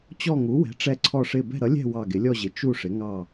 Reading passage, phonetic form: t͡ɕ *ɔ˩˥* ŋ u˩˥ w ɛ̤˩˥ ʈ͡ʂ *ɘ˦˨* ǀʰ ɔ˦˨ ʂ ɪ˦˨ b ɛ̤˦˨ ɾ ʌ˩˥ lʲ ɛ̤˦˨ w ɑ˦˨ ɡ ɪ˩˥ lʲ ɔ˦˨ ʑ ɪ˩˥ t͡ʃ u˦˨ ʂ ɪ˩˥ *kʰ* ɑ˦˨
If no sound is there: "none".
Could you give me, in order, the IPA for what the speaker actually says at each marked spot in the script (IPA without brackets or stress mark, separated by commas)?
ɔ˦˨, ɛ˦˨, ŋ